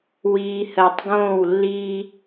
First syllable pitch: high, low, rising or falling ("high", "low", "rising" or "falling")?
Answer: low